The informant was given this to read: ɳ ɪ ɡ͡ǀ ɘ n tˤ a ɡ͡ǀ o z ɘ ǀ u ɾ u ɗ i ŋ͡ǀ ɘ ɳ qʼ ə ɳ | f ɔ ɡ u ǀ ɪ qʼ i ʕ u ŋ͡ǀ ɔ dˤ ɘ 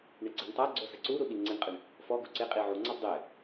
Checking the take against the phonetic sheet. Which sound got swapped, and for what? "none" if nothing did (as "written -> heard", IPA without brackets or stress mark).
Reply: none